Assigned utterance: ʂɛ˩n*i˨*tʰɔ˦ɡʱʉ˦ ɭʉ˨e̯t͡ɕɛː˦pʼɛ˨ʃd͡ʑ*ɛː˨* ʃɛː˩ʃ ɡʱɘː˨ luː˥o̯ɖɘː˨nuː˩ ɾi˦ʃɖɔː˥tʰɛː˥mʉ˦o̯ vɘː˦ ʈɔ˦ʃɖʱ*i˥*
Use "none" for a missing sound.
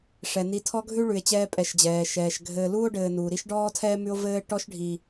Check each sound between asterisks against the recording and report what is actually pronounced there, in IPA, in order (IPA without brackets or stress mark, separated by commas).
i˨, ɛː˩, i˨